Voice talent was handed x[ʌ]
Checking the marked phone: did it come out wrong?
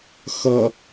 no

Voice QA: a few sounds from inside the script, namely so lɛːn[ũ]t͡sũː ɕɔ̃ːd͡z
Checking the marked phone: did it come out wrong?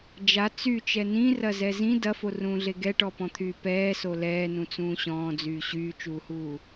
no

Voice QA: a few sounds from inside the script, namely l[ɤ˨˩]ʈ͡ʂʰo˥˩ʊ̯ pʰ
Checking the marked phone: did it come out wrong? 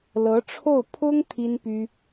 yes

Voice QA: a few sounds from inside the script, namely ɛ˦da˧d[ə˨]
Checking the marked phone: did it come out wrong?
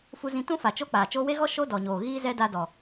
yes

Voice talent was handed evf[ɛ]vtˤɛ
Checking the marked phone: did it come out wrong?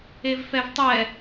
no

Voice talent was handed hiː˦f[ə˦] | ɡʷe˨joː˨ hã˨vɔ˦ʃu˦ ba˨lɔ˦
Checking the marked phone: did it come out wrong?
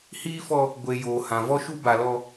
yes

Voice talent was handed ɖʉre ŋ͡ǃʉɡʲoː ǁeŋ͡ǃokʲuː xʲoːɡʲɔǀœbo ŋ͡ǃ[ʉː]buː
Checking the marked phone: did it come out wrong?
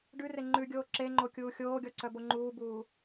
yes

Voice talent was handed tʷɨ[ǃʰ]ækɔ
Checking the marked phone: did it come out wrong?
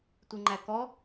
yes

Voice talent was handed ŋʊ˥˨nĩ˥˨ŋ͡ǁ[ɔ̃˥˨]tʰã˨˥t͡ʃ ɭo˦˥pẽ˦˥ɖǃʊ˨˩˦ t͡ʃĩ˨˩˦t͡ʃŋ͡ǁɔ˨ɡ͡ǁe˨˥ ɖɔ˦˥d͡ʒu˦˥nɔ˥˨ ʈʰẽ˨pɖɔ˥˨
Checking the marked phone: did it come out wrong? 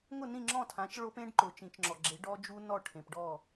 no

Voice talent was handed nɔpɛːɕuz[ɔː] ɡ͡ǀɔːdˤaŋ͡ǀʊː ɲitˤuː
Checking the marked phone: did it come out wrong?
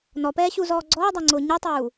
no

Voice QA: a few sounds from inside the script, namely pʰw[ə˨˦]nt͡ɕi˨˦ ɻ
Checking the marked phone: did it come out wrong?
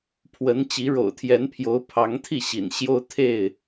no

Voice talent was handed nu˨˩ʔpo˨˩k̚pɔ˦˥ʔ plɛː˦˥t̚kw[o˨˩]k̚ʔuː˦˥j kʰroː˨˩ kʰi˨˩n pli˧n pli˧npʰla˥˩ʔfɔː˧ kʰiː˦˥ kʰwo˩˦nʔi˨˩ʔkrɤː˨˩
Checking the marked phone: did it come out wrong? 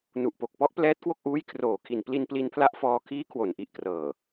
yes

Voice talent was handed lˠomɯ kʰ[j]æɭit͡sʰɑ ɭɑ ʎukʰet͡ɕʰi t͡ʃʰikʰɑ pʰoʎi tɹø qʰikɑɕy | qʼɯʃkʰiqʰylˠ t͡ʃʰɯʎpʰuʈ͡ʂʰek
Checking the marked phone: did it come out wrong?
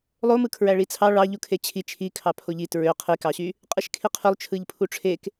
yes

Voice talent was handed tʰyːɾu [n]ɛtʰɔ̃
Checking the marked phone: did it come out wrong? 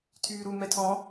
yes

